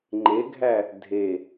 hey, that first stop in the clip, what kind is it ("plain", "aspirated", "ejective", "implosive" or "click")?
click